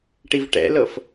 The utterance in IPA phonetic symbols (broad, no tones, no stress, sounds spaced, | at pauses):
ʈ i v ʈ ɛ̰ l ɤ f